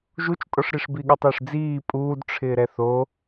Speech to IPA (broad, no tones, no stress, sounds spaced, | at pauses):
ʒ u t͡ʃ tʼ ɔ ʂ ɾ i ʂ b i ɠ ʊ tˤ ɪː ʂ d͡z iː pʼ uː d ʈ͡ʂʰ ɪː ɾ ɛ θ o